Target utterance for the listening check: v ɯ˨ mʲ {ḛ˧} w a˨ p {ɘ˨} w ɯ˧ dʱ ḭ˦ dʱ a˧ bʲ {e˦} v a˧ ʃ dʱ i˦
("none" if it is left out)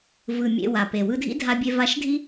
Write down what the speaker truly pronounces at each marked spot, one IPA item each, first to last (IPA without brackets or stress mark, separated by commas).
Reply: ḛ˧, e˨, e˧